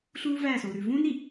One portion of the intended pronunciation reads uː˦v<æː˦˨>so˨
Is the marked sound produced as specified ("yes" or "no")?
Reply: yes